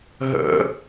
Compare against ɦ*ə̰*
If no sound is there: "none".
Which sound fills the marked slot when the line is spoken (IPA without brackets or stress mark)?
ə̰